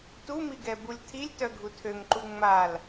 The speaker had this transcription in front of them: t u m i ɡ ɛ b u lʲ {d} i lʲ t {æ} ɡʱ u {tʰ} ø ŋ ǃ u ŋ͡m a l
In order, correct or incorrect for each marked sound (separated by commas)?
incorrect, incorrect, correct